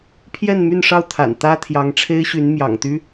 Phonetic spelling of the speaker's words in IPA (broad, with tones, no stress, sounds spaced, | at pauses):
pʰ j ɛ˥˧ n m y˥˧ n ʂ ɑ˥˩ ʊ̯ t̪ʰ a̰˨˩ n t̪ ä˥ t̪ʰ j ɑ˧˥ ŋ ʈ͡ʂʰ e˥ ɪ̯ ɕ y˧˥ n m j ɑ̰˨˩ ŋ t̪ y˥